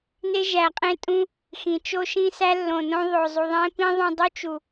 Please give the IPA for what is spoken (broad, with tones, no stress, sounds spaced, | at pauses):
n e˦ ʒ æ˨ qʼ ẽ˦ tʼ ũ˦ | x ĩ˨ t͡ʃ o˦ ʃ ĩ˦ s æ˦ lː õ˨ n õ˧ ðˤ o˨ zˤ u˨ ðˤ ẽ˦ p ĩ˦ ðˤ õ˧ dˤ u˦ t͡ʃ u˨